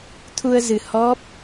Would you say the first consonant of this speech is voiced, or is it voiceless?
voiceless